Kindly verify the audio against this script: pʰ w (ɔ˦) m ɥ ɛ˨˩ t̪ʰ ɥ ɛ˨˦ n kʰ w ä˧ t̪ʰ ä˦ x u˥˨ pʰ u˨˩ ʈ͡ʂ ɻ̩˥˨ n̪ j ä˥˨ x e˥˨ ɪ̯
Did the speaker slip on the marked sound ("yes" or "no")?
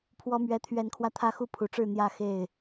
yes